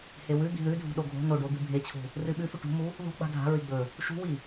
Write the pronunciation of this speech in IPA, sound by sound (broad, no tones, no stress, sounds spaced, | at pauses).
h e w ʉ d̪ i̤ ð ʉ dʱ ṳ ɗ o ɡʱ o̤ n o ɖ o d̪ ɨ bʱ e t͡ɕʰ ṳ | r ɨ ɓ ʉ f ʉ ʈ ṳ m u | ð o̤ ɡ͡b a̤ dʱ a̤ ɹ i ɡ͡b ɵ | ʃ ṳ w i